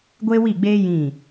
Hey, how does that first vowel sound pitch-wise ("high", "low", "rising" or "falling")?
high